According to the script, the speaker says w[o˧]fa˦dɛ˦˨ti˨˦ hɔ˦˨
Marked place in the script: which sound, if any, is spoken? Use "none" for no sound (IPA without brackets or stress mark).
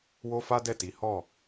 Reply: o˦